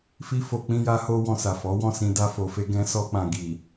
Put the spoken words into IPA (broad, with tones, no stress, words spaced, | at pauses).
fi˦fo˧ k͡pĩ˧ja˧ho˧ wɔ̃˧sa˨fɔ˨˦wɔ̃˦˨ sĩ˧da˧ fo˨fe˧ ɡɛ̃˧sɔ˧k͡pã˨ ɡi˨